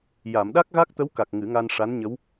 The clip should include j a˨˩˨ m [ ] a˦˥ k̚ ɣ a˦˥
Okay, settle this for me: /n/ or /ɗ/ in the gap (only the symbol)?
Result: ɗ